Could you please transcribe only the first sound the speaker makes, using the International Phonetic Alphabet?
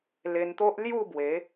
l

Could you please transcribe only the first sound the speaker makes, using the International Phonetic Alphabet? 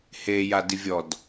h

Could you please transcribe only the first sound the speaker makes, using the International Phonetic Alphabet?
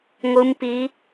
ŋʷ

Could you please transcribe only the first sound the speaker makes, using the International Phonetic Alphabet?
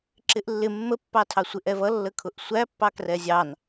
ǁ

